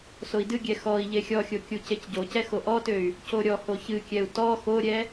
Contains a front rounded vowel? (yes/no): yes